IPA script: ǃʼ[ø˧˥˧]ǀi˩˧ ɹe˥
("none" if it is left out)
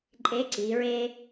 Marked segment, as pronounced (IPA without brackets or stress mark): e˧˥˧